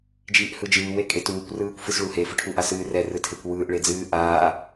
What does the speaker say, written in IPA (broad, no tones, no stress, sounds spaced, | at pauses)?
d͡ʒ iː ʔ h ɯ d͡ʒ ɨː w e kʼ e t uː kʷ r ɯː kʷ f ɨ s ɭ u h e f ɯ ʈʰ u ʔ a s ɨː r ɛ r ɯ tʰ e kʷ w ɯː ʔ ɭ e d͡z ɨː ʔ aː